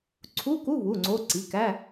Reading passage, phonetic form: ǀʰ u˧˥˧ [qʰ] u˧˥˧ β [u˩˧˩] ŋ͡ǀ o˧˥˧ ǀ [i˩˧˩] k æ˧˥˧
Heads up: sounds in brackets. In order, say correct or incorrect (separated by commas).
incorrect, correct, correct